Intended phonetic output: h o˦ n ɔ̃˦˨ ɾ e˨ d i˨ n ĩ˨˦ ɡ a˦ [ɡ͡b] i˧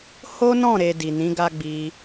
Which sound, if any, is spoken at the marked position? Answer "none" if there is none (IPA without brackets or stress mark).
ɡ͡b